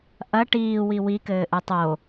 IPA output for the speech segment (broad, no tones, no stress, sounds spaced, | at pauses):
ʔ ɐ ʈ iː w i w i k ɘː ʔ ɨ tˤ o